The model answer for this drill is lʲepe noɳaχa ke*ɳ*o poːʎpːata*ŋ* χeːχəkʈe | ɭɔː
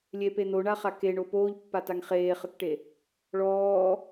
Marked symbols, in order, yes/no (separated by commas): yes, yes